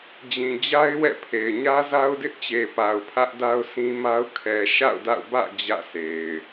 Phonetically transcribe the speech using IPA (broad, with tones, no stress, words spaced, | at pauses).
d͡ʑĩ˨d͡ʑa˦ɪ̯wɛ̰˦˨pʰe˨ɪ̯ ɲä˦za˦ʊ̯dɪ˦ʔt͡ɕe˨ pa˨ʊ̯pʰä˦ʔ da˦ʊ̯sĩ˦ma˦ʊ̯ kʰɛ˨ʃa̰˦˨ʊ̯da̰˦˨ʊ̯bä̰˦˨ d͡ʑä̰˦˨sʰe˨ɪ̯